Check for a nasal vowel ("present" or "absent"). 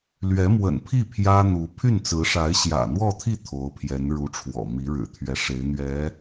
absent